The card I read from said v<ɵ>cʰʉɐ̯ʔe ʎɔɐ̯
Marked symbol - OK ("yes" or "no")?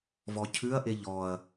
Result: no